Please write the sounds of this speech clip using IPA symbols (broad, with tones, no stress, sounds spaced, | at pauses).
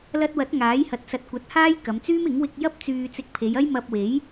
l ɐ˧ t̚ w ɐ˨˥ t̚ ŋ aː˨˥ j h ɐ˨˥ t̚ s ɐ˨˥ t̚ kʷ ɐ˨˥ t̚ h aː˥ j k ɐ˨˧ m t͡s yː˥ m ɪ˨˥ ŋ w ɪ˧ k̚ j ɐ˥ p̚ t͡s yː˧ t͡s ɪ˧ k̚ pʰ e˨˧ j ɐ˥ j m ɐ˧ p̚ w e˨˥ j